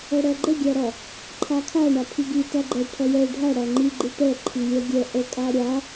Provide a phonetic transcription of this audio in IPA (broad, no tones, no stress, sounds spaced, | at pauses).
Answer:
ɜ ɽ ɜ ɡ͡ǃ ə ɡʲ æ ɾ ɔ | ǃʰ a kʰ a ɳ a pʰ i ɡ i t æ ɡ͡ǃ ɜ ʈʰ ɜ j ɛ ɖʱ a ɽ æ ŋ͡ǃ i ɡ͡ǃ i ʈ ɛ ǃʰ i lʲ ɜ ɡʲ ɛ ʔ ə kʼ a ɾʲ a